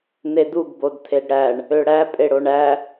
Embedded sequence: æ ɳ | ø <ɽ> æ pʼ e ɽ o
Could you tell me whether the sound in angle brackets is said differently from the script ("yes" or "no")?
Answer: no